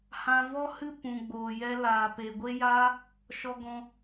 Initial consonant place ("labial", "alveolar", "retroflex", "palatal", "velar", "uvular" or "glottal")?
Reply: glottal